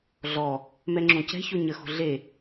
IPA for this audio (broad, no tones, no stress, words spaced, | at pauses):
ɮɔ | mɛŋ͡ǁõcɛ̤ço ɲəxo̤ ɮe